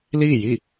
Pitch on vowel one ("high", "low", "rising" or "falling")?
falling